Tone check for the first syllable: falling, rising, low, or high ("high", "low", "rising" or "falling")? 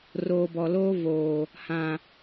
low